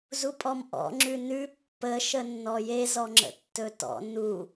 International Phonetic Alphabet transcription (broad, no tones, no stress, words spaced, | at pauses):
zupʼɔmʔɔ̰ ŋ͡ǁʉnʉ pːə ʃənːɔje zɔŋ͡ǁə̰tːɵtɔ̰ nu